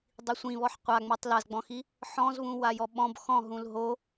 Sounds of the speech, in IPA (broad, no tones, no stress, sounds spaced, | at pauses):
dˤ i sʷ ĩ β ɔ ħ qʷ a ŋ͡m o tˤ l a z ɡ͡b ɔ̃ x i | ħ ɔ̃ z β ũ w a j ɔ ɓ ɔ̃ b x ɔ̃ ɦ ũ l ɦ o